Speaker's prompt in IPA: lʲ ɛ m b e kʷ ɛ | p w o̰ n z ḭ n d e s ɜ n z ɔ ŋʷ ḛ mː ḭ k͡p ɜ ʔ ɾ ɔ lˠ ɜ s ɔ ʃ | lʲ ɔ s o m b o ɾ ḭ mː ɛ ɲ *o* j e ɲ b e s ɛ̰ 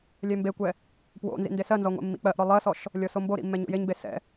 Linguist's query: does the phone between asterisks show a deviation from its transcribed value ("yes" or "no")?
yes